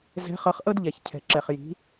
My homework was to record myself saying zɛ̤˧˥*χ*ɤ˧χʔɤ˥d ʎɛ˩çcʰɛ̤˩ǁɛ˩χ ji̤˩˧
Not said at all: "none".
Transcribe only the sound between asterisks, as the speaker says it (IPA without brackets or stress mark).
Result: χ